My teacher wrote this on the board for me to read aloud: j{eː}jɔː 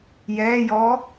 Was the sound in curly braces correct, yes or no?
no